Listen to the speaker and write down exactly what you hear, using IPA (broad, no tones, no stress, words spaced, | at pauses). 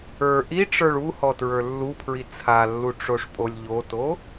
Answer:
ə˞ ʔiʈ͡ʂə˞ɭ uhɔ tɹə˞lːupʰɹi t͡sʰalːu ʈ͡ʂoʂpʼolʲʎoto